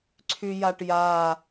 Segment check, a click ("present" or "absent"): present